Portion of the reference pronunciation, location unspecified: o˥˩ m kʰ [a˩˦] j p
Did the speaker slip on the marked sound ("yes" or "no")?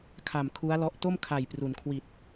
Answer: yes